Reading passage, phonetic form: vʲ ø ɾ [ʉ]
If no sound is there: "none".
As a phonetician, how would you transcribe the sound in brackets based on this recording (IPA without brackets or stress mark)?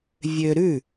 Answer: ʉ